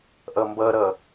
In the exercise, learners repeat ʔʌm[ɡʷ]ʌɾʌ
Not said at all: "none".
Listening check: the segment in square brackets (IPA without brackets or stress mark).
b